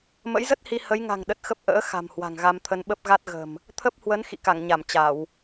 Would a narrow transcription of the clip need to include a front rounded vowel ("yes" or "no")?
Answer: no